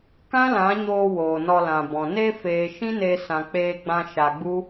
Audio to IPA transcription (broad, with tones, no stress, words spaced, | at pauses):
kã˦lã˨˦ɲoː˧ woː˨nɔ˧lã˨bɔ̃˨ ne˧feː˨ ʃĩ˦ne˧ sã˨k͡peː˧ɡ͡bã˧ ʃa˧ɡ͡bu˦